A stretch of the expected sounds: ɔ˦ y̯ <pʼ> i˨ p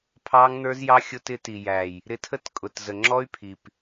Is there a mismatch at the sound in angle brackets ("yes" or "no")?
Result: yes